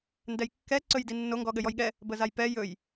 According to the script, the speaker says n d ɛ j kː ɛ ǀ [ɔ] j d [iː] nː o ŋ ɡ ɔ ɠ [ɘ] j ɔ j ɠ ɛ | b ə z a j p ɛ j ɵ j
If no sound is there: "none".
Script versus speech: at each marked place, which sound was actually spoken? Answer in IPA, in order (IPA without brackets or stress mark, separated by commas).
ɵ, i, ɘ